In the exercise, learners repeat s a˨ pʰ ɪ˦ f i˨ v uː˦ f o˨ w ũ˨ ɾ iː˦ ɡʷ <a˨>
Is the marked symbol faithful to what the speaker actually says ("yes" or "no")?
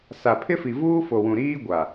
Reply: yes